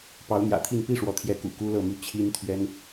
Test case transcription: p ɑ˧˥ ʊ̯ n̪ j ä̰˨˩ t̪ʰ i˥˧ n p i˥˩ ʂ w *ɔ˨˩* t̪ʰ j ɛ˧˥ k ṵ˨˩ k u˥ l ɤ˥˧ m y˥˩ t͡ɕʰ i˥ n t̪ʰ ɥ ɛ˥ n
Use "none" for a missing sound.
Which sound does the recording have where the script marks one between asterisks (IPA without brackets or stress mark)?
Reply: ɔ˧˥